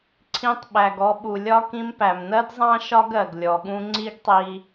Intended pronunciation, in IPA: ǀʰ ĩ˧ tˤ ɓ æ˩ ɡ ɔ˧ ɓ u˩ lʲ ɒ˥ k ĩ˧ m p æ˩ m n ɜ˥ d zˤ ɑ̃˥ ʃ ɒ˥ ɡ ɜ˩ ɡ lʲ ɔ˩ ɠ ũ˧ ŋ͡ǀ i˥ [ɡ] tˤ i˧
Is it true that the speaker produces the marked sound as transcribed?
yes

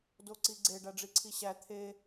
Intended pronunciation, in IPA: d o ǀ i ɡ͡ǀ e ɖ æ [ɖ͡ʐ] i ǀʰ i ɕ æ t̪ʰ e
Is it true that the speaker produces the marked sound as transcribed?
yes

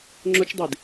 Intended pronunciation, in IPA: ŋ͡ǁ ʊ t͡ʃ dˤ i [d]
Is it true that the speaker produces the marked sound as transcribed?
yes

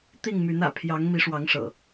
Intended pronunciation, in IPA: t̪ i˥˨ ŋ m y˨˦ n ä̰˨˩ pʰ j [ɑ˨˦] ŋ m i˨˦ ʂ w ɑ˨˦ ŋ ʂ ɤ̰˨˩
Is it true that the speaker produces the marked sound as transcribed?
yes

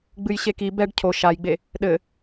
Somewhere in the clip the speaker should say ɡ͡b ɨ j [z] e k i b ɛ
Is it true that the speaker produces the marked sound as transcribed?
no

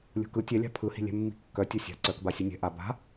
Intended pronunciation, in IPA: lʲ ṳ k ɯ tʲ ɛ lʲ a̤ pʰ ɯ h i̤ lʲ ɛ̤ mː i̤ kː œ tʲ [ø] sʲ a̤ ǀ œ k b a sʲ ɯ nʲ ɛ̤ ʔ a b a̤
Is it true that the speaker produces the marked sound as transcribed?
no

